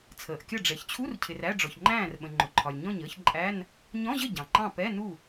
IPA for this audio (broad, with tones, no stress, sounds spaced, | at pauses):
t͡sʰ əː˩ ʔ kʲ ʌ˥˩ ɖ͡ʐ ɛ˩ ç t͡ɕʰ u˧˥˧ r cʰ ɪ˩ r æ˧˥˧ ɖ͡ʐ ɔ˩ ç ŋ͡ǃ æ̃ː˥˩ r ɓ ə̃˩ ŋ͡ǃ ʊ˩ ǃʰ ɒ˩ lʲ ɲ ɔ̃˥˩ ɲ əː˧˥˧ ç ǃʼ æ˧˥˧ n | ɲ ɔ̃˧˥˧ ʑ ə˥˩ ɟ ɑ̃˩ ŋ͡ǃ ɑ̃˥˩ p ɛ˧˥˧ n u˥˩